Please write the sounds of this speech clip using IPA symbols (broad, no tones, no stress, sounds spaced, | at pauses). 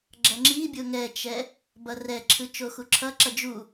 ɡ͡ǁ ʌ ŋ͡ǁ i bʲ o ŋ ɛ t͡ʃ ɛ | b ʌ r ɛ ǁʰ ɯ t͡ʃ o x u ǁʰ ʌ ǁ ʌ d͡ʒ u